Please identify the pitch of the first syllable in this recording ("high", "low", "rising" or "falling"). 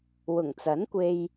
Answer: low